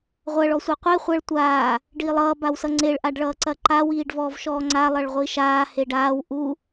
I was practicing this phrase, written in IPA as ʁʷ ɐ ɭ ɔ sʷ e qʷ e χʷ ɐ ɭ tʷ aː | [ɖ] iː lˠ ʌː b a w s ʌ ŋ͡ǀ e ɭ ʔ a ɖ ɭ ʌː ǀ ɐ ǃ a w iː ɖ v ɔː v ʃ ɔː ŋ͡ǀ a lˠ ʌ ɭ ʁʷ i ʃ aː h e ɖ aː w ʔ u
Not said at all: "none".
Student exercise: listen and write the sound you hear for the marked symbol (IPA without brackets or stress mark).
ɖ